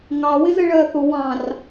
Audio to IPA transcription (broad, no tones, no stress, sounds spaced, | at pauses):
ŋ ɑ w ɪ z ə ɭ ɜ θ ʊ w ɑ̃ r